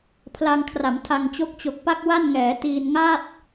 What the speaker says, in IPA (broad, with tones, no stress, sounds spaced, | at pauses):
pʰ l a˧ ŋ kʰ r a˩˦ m tʰ a˧ ŋ t͡ɕ o˥˩ k̚ t͡ɕ o˨˩ k̚ p a˥˩ k̚ w a˥˩ n ŋ ɛː˩˦ t iː˧ n ŋ a˥˩ t̚